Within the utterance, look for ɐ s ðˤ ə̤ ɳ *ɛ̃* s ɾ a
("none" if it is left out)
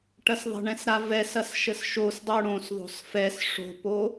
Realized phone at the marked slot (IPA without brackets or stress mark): ɛ̃